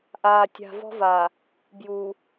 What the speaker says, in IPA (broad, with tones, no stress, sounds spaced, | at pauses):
ʔ aː˨ tʲ a̤˨ v ɔ̤˦ v a˨ | b j u˨